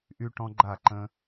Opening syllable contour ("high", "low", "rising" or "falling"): high